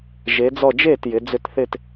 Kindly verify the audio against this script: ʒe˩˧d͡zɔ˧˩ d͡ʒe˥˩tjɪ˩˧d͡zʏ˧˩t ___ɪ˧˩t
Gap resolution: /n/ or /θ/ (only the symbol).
θ